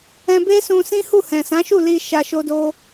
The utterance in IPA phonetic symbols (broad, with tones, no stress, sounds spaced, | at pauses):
ɛ̃˧ b e˦ s ũ˧ s ĩ˦ h u˦˨ h ɛ̃˨ s ã˨˦ ʃ u˦˨ l i˧ ʃ a˧ ʃ o˦ d o˦